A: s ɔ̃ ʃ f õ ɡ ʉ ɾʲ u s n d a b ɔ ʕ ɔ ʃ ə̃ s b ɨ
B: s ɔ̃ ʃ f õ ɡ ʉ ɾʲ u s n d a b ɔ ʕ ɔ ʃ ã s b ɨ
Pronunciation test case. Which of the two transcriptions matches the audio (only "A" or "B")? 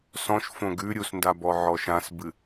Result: B